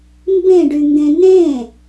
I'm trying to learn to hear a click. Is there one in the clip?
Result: no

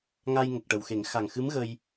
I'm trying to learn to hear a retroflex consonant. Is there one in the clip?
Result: yes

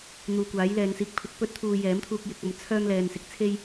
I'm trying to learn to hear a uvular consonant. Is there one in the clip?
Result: no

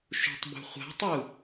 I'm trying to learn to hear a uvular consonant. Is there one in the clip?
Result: yes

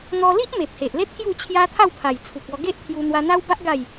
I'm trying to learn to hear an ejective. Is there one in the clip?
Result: no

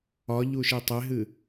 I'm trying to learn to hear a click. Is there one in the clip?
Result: no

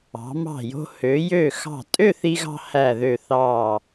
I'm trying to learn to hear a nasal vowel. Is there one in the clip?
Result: no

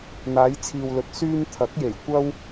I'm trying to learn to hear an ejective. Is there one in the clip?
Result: no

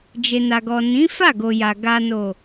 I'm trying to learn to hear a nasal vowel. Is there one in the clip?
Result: yes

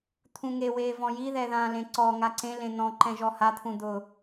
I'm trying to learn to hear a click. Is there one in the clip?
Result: yes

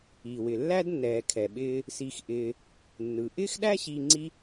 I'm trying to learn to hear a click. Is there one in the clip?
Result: yes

